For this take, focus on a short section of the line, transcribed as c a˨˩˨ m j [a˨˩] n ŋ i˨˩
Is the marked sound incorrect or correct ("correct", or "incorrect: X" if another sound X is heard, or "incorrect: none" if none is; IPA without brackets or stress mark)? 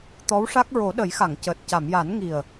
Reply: incorrect: a˨˩˦